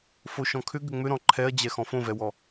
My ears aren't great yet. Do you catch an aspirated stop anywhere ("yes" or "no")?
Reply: yes